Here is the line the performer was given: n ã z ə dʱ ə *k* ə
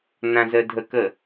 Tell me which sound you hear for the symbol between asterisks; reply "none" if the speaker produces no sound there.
k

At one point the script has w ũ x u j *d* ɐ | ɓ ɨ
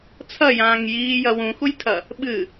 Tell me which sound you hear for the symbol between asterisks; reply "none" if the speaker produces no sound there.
tʰ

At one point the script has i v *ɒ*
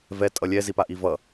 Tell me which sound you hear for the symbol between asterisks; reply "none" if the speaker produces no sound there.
ʌ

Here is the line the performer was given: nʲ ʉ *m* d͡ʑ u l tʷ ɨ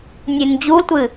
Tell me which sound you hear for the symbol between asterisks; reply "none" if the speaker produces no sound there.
n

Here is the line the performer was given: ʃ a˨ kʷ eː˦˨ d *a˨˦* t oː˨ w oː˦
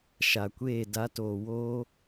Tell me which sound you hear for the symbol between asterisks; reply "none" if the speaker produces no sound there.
a˨˦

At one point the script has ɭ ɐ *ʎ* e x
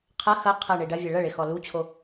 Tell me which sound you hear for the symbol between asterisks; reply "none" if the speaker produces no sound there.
ɭ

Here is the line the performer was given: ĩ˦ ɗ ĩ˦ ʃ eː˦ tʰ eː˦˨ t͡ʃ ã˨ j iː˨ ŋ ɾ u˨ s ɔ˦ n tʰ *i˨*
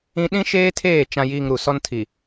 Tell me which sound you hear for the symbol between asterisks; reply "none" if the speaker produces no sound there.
i˨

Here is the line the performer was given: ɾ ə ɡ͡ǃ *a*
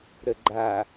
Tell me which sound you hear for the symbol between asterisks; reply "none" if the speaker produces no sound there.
a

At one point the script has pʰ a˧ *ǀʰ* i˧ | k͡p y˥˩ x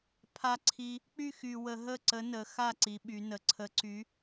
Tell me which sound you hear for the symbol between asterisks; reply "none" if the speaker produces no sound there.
ǀʰ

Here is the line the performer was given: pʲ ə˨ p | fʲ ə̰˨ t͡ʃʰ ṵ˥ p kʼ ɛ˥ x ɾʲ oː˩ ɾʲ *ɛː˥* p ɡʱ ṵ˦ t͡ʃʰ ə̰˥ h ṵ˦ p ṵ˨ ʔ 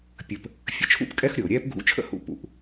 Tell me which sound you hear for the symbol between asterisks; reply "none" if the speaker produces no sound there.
ɛː˥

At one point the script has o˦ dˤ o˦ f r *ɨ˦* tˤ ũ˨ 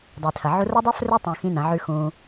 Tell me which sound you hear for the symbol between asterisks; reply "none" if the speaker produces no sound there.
ɨ˧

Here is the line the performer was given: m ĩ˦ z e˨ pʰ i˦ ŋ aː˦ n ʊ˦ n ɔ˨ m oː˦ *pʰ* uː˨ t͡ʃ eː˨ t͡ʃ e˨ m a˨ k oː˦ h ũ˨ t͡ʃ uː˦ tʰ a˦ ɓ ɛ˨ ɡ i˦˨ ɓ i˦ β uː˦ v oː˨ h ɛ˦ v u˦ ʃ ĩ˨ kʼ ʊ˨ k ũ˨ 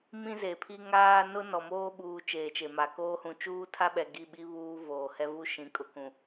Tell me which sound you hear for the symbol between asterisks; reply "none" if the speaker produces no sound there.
ɓ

